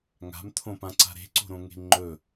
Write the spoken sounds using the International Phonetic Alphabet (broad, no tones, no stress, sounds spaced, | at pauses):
ŋ a̤ m t̪ʰ õ p ã ǀ a̤ ɾ e̤ ǀ o̤ ɾ õ ŋ e̤ ŋ͡ǃ ɵ